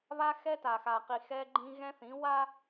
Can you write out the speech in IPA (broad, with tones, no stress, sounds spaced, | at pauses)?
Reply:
β a˦ x ɛ˦ t a˨ x a˨ q i˨ x ɛ˦ ɡ͡ǃ ĩ˦ ɣ ɛ̃˦ θ ĩ˨˦ w a˦